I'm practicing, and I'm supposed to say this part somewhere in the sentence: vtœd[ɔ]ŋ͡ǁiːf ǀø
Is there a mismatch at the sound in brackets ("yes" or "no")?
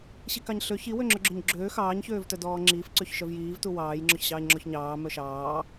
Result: yes